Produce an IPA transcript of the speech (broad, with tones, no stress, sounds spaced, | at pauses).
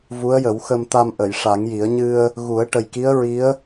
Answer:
v u˧˥ ə̯ j ə˨˩˦ w x ə˧ m t̪ a˧ m ʔ ə˨˩˨ j ʂ a˨˩˦ ŋ j i˨˩˦ ə̯ ɲ ɨ˧ ə̯ | ɣ u˨˩˦ ə̯ ʈ ə˨˩ j k i˧˥ ə̯ ɹ i˧˥ ə̯